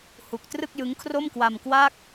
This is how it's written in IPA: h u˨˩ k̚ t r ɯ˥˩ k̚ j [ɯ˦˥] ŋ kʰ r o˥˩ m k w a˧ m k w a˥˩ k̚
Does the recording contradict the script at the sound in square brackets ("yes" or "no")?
no